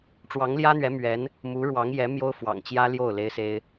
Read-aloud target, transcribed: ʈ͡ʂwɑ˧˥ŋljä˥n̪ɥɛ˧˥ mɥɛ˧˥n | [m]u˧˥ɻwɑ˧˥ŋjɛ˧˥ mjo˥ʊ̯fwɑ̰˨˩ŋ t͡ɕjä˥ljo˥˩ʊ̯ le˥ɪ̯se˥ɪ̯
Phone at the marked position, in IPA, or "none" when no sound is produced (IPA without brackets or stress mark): m